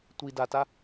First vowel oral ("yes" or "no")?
yes